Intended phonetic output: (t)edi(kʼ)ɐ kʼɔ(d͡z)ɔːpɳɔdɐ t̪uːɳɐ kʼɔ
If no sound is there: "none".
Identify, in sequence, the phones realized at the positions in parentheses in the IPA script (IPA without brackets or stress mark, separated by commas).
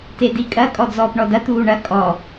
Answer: t, kʼ, d͡z